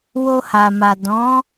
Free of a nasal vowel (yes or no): no